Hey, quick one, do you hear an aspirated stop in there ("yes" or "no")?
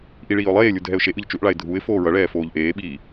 no